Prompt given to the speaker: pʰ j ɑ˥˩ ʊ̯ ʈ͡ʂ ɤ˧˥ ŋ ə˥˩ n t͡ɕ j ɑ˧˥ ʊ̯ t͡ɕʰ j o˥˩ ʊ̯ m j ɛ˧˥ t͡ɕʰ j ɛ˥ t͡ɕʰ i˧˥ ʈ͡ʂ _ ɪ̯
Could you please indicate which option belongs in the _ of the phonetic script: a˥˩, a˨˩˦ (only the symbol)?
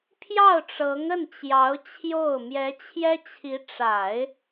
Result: a˨˩˦